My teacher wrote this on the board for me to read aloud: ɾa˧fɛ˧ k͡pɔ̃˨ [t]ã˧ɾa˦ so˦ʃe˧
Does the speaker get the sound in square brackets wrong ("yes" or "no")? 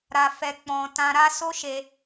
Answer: no